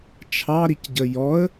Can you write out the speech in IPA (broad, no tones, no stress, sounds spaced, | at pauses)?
t͡ʃʰ ɑ ɾ i c ɟ ə j ɔ ə̯